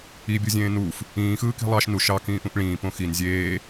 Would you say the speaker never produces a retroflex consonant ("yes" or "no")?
no